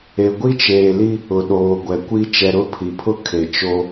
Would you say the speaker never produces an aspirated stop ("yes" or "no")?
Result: no